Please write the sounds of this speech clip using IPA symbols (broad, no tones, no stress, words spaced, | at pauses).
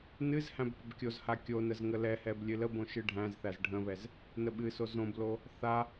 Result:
nɨz hæ̃bpəbkʲozha kʲonəz ŋəlɛhɛb lʲɨləbõ ʃɨɖʱæ̃zθæz ɖʱə̃βɛz | nəɓɨso zõblo | θa